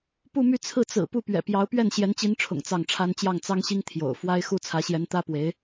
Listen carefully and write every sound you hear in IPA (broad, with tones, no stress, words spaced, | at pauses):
pu˥˧my˥˧t͡sʰɹ̩˥˩ t͡sɹ̩˨˩ pu˥˩pɥɛ̰˨˩pjɑ˧˥ʊ̯ pɥɛ˥˩nɕjɛ˧˥nt͡ɕi˧˥nʈ͡ʂʰʊ̰˨˩ŋ t͡sɑ˥˩ŋʈ͡ʂʰa˥n t͡ɕjɑ˥˩ŋt͡sɑ˥ŋɕi˥ŋ t̪ʰjo̰˨˩ʊ̯ fwa˥ɪ̯xu˥ t͡sʰä˧˥ɕjɛ˧˥n t̪ä˥pwe˧˥ɪ̯